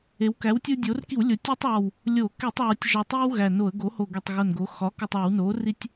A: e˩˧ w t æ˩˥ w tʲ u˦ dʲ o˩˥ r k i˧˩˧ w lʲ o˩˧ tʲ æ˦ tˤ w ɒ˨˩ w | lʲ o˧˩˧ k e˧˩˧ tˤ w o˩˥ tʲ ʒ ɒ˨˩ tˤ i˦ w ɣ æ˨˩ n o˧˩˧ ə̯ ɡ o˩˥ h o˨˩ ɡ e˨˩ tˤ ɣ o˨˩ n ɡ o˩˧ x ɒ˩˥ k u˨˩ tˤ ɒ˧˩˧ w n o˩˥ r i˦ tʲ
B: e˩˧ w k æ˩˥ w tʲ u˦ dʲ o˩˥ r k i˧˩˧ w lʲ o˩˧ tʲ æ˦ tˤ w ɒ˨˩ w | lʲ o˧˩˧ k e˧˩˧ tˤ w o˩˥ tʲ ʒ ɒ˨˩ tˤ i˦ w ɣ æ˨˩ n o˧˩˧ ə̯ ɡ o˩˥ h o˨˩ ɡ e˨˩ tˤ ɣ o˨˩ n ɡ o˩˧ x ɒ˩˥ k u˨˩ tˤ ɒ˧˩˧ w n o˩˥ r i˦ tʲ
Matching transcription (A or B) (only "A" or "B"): B